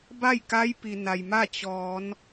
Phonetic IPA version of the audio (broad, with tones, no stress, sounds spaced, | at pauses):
b a˥˨ j k a˧˥ j p i˩ n a˩ j m a˥˨ t͡ɕ ɔː˩˧ n